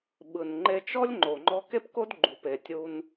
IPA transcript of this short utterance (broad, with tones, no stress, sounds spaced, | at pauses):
ɓ ɯ˩ n ŋ͡ǃ e˧ t͡ʃ ɔ˥ lʲ ŋ͡ǃ o˩ ŋ͡ǃ ɔ˧ k e˥ p k o˥ d ɡ͡ǃ u˩ p e˩ tʲ u˧ n